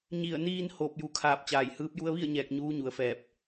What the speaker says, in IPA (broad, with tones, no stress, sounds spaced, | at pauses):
ɲ i˧˩ ə̯ n iː˧ n h oː˧˩ p̚ j u˩˧ kʰ aː˧˩ p̚ t͡ɕ aː˧˩ j h ɯː˧˥ p̚ j u˧ ə̯ ʋ i˥˨ ə̯ ɲ ɛː˧˩ k̚ ɲ uː˧˥ ɲ u˩˧ ə̯ f ɛː˧˩ p̚